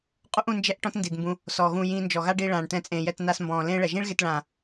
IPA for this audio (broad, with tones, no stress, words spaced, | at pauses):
qʼu˦ʔũ˧ nd͡ʒɛ˦ʔʈɔ̃˦tndi˨dmbũ˧ | sɔ˨ɣũ˧ jĩː˧nd͡ʒɔ˨ɣa˦ɖi˧ ɭãː˨ɳ tɛ̃˧t͡sʼẽ˨jɛ˧t na˧s mbɔ̃ː˨lẽ˦ɭɛ˨ ʒĩ˦ɭɣe˧tɭãː˨